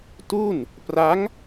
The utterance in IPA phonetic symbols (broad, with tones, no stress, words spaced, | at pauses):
tu˥˩n | pra˦˥ŋ